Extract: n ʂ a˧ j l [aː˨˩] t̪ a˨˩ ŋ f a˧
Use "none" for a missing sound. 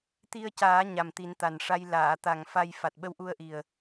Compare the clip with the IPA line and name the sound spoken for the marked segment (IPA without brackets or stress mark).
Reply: aː˨˩˨